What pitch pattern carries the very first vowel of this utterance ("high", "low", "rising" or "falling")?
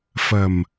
low